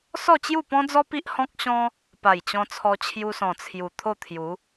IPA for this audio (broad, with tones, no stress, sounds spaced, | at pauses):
s ɔ˥˧ t͡ɕ j u˥˧ p ɔ̃˦ d͡z ɔ˦ p i˦ ʔ h ɔ̃˦ k̚ ɕ ɔ̃˦ | p a˨˩ j t͡ɕ ɔ̃˧ t͡sʰ ɔ˧ t͡ɕʰ j u˧ s ɔ̃˨˩ t͡sʰ j u˨˩ t̪ʰ o˥˧ t̪ʰ j u˨˦